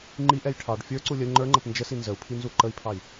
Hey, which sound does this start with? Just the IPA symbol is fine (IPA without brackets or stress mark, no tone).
ŋ͡ǃ